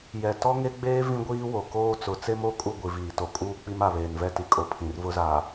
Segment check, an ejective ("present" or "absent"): present